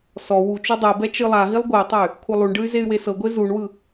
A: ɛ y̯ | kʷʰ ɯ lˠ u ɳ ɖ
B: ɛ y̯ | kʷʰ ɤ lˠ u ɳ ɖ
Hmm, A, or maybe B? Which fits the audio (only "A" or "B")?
A